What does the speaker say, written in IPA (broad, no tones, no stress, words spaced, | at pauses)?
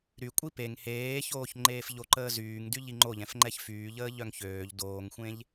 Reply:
ɾy kʷʼipeŋ heːçoːç ŋ͡ǃeːfʎoǃəː zyːŋdy ʎiŋ͡ǃoʎɛ̃fŋ͡ǃɛç fyːʎəː ʎœŋçøːʎ doːŋxʷẽʎ